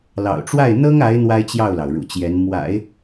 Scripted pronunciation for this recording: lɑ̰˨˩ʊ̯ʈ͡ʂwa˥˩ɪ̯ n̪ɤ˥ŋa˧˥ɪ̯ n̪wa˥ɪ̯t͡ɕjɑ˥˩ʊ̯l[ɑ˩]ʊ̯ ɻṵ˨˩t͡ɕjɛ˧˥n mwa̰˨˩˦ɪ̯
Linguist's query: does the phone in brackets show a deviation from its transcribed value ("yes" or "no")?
no